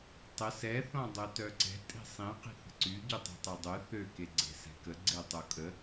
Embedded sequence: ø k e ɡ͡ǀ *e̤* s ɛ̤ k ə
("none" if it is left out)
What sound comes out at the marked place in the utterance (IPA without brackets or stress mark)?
e̤